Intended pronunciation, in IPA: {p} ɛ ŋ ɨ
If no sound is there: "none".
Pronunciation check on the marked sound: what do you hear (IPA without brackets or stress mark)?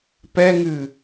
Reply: p